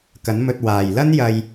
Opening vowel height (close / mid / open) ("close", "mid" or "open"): open